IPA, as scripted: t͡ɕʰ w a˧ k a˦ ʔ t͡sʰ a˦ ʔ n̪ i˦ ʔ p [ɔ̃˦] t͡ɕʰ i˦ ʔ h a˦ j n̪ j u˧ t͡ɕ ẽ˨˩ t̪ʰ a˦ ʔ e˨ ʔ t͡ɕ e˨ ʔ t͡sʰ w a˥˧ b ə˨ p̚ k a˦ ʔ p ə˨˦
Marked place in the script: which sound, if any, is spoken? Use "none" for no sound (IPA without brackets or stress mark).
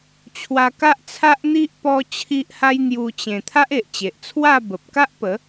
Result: ɔ˦